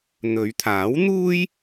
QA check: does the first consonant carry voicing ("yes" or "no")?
yes